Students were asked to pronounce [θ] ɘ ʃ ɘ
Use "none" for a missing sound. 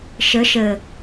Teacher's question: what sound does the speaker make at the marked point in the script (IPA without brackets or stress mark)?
ʃ